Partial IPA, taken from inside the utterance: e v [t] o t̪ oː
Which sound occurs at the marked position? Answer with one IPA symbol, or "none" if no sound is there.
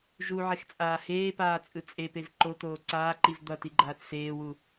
ǃ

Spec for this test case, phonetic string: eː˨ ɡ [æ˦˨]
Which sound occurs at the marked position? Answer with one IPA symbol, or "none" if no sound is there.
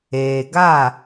a˦˨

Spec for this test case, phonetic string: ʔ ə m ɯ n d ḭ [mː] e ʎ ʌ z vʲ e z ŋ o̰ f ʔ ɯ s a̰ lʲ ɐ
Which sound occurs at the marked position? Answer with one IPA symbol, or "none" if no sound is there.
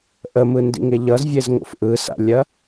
ŋ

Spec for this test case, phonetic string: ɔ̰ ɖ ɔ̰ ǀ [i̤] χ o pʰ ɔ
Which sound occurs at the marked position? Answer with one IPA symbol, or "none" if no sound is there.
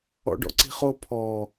i̤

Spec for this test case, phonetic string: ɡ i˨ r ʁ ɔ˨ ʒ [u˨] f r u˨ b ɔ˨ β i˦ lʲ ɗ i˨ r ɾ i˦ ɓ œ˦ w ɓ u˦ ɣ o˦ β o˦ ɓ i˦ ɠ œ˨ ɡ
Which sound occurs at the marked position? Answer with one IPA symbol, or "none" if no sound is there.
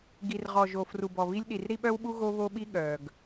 o˨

